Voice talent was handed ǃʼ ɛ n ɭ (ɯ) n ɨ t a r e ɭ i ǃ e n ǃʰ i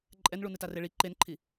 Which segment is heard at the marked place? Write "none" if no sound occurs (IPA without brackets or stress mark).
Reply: u